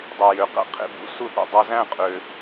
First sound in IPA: dˤ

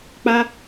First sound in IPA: k͡p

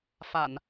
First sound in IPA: f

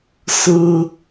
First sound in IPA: s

